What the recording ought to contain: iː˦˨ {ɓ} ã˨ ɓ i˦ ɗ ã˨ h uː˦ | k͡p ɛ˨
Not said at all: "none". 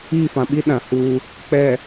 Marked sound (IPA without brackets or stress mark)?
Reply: f